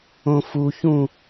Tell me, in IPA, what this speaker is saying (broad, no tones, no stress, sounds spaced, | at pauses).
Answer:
õ f u ç ũ